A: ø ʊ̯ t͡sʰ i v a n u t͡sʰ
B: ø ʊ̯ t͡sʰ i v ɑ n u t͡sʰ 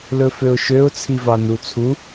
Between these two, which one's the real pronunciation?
B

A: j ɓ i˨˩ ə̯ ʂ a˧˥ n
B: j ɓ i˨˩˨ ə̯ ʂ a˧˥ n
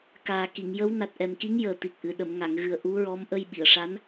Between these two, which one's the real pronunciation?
B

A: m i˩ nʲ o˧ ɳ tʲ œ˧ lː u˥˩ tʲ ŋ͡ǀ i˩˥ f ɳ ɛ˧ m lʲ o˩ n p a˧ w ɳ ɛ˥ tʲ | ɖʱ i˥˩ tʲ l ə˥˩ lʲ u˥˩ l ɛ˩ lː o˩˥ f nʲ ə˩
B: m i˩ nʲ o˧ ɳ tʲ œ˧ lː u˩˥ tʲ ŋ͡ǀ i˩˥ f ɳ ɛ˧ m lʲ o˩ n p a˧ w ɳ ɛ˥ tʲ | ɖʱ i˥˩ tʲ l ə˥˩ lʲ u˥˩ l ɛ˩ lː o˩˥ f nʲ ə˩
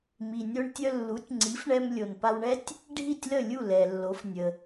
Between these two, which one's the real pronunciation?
B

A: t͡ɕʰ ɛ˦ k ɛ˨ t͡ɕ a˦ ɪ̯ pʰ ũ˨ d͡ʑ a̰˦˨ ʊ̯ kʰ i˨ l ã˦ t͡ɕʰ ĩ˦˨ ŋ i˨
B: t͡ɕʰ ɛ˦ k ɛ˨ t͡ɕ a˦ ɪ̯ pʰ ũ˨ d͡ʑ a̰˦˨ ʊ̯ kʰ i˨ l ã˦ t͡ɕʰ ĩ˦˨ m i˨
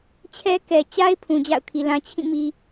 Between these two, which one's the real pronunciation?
B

